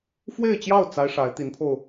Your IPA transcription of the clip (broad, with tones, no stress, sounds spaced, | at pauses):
f w e˥˧ ɪ̯ t͡ɕ j ɑ˥˩ ʊ̯ t͡s a˥ ɪ̯ ʂ a˧˥ ɪ̯ t̪ i˧˥ n pʰ o˧ ʊ̯